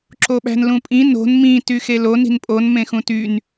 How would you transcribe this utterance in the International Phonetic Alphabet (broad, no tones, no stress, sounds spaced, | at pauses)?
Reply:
ǁ o ɓ æ̤ n l ũ pʼ ĩ n o̤ n m ĩ t y x e l o n i̤ n pʼ o n m ẽ x ũ t y n